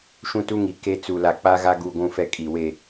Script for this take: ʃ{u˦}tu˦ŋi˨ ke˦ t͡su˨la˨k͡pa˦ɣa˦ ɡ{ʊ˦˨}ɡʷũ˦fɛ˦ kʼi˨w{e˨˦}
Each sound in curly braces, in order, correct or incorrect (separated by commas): incorrect, incorrect, incorrect